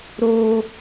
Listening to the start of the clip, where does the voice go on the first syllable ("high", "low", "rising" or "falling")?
high